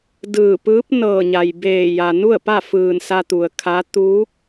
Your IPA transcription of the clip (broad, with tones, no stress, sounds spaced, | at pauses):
d ɯː˧˩ p ɯː˧˥ p̚ n ɤː˧˩ ɲ a˩ j b eː˧˩ j a˩ n u˥˨ ə̯ p a˥˨ f ɯː˧˩ n s a˧ t̪ u˩ ə̯ kʰ a˧˥ t̪ uː˧˥ k̚